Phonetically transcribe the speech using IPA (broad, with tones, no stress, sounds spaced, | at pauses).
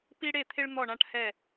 p i˦ ɽ e˦˨ t̪ʰ ɪ˦ ɭ n̪ ɔ˦˨ ɳ ã˦ ʈ h ɛ˦˨